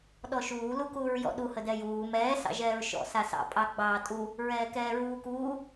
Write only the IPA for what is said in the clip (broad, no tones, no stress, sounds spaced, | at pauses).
ɗ ɔ ʃ uː l u k uː ɹ j ɔ̰ ɗ u h ə d ɛ j uː m ɛː s ɑ̰ ʒ ɛː ɹ ʃ ɔ̰ s a s ɑ̰ pʼ ɑ ɡ͡b ɑː tʼ u | ɹ ɛː k ɛː ɹ uː k uː